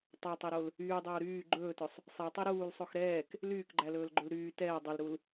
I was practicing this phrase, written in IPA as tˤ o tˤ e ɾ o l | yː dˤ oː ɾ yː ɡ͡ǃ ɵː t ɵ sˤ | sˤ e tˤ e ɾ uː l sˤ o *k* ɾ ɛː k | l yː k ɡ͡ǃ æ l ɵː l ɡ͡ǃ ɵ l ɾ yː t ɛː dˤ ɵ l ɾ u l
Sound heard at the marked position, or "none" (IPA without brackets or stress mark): x